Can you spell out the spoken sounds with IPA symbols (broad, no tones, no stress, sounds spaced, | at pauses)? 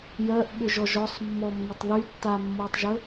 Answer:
j ɜ ʔ ɓ ʏ ʒ ɔ ʒ ɔ sˤ mː ɔ mː ʏ tˤ ð y tː a mː ɤ tˤ ʒ ə